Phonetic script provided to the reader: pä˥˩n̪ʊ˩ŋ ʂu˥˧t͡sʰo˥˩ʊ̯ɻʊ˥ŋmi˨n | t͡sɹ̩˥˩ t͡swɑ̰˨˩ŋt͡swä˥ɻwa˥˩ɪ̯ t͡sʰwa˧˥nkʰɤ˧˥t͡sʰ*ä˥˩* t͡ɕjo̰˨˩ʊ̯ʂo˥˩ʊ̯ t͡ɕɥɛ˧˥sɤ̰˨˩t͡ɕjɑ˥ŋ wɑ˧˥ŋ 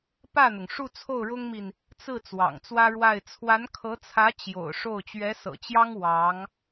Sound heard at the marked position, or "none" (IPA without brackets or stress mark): ä˧˥